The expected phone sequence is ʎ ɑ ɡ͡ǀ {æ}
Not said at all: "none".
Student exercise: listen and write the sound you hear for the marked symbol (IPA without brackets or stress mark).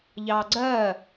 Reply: ɜ